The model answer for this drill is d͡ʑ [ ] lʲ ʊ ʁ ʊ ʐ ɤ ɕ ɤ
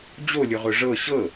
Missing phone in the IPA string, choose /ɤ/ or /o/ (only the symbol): o